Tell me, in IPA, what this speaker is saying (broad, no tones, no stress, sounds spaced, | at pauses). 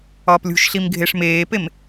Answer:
ɒː p lʲ ṳ ʃ ɬ i m ɡʱ e ʂ m eː p e m